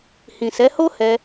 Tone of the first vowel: low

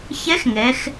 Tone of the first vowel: rising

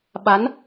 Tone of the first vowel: rising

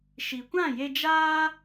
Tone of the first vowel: low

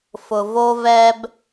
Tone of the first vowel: low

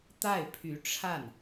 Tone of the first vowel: falling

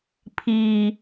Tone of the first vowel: low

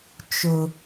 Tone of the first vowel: low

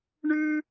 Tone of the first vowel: high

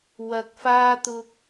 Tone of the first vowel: low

